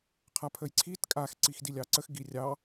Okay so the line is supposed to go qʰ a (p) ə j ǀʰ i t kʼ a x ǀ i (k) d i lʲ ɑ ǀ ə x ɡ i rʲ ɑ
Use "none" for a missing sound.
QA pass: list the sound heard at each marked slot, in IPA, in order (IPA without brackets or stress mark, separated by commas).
pʰ, x